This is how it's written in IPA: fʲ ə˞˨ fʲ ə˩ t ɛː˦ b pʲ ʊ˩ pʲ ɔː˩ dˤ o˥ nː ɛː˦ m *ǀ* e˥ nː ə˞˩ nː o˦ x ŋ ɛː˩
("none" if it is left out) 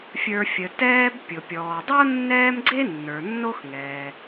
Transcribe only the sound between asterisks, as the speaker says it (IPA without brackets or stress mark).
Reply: ɡ͡ǀ